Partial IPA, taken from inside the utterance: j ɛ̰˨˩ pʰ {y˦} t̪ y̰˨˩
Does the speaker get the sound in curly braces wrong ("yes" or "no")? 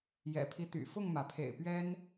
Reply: yes